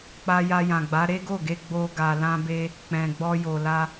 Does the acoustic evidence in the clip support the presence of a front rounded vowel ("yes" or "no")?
no